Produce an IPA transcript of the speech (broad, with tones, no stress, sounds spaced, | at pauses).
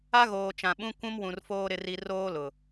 a˦ ɣ oː˨ t͡ʃ ã˨ ɓ ũ˦ kʷ ũ˦ m w ũ˨ r f oː˦ ɾ ɪ˦ r i˦ r oː˦ l ʊ˨